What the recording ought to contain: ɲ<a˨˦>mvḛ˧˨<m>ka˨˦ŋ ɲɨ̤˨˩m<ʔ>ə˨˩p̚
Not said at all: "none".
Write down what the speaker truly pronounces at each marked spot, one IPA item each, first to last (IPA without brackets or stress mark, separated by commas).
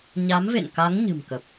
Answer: a˨˦, n, k